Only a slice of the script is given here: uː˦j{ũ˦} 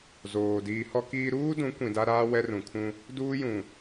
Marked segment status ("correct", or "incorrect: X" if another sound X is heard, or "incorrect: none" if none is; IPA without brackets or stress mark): incorrect: ũ˨